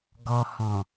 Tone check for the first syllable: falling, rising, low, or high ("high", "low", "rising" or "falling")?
low